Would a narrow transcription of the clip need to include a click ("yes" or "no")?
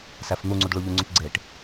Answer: yes